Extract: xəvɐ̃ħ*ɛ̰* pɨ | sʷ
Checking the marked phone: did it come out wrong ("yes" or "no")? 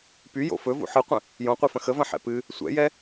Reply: no